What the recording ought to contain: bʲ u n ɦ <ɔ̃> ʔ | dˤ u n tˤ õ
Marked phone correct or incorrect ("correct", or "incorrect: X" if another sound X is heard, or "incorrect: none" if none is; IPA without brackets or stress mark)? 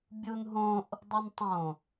incorrect: õ